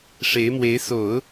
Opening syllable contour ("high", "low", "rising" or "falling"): rising